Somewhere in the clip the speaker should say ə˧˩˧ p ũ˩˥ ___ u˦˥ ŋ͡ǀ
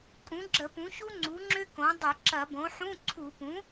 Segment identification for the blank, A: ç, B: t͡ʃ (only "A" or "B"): A